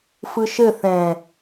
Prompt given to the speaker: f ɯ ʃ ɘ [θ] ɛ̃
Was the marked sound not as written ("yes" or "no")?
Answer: no